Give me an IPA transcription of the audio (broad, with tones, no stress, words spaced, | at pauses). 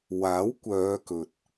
waː˨˥wkʷœː˨˧ kɵ˨t̚